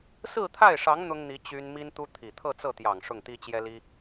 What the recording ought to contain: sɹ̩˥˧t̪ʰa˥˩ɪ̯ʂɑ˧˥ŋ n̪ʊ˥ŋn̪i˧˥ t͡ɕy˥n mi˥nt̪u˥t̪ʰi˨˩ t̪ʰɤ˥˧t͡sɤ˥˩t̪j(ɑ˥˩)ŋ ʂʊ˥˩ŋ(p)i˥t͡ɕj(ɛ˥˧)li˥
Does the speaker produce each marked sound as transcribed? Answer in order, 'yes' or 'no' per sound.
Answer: no, no, no

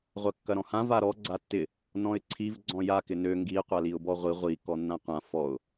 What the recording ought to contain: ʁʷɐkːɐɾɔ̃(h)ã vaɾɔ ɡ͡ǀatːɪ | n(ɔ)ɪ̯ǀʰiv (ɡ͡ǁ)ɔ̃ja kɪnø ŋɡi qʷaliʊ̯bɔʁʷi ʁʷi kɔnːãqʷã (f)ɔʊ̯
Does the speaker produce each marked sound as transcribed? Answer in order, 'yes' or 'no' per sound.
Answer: yes, no, no, yes

